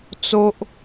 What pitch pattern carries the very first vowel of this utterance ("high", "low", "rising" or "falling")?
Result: low